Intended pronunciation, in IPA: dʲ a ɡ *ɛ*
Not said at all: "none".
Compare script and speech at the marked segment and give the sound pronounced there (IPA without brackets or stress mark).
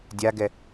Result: ɛ